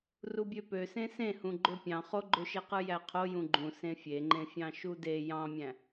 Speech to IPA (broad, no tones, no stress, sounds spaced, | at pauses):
r u bʲ ø p ø s ẽ s ẽ h ũ ɡ͡ǃ ø pʲ ɑ̃ χ o ɡ͡ǃ ø ʃ e q ɯ j æ qʰ o j ũ ɡ͡ǃ ũ s ẽ fʲ e ŋ͡ǃ ẽ fʲ ɑ̃ ʃ u d e j ɑ̃ mʲ æ̃